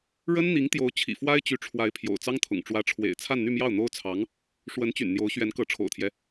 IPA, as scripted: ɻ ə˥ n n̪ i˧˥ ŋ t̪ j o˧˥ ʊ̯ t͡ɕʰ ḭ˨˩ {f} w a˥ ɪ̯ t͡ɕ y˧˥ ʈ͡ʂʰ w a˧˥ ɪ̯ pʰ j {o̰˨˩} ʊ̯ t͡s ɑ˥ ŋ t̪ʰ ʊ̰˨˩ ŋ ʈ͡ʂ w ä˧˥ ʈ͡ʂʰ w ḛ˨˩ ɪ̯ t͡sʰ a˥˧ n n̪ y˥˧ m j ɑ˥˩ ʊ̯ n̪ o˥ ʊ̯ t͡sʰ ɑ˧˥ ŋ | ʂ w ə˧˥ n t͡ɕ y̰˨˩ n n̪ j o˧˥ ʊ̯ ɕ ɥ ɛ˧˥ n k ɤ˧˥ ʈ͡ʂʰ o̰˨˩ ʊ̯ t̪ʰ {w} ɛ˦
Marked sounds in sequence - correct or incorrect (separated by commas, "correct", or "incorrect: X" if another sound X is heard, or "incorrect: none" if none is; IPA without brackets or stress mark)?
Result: correct, correct, incorrect: j